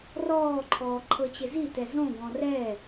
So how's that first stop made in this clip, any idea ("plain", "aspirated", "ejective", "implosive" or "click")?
click